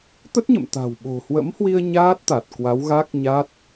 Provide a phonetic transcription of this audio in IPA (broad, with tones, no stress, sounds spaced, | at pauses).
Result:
t̪ ə˦˥ t̚ ɲ ə̰˧˨ m t̪ a̤˨˩ w ɓ o̤˨˩ h w ə̰˧˥ m h w i˧ ə̯ ɲ aː˦˥ t̚ t̪ a˨˩ t̚ k w a˨˦ w ɣ a˦˥ k̚ ɲ a˦˥ t̚